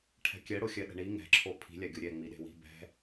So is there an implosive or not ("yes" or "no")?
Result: yes